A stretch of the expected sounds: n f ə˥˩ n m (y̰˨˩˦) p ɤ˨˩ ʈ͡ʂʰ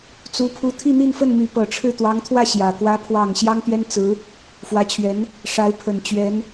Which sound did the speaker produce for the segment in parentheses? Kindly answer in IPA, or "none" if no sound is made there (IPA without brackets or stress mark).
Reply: y˧˥